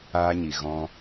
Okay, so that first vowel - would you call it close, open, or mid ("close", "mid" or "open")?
open